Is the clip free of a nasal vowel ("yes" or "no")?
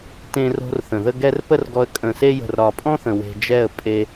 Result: no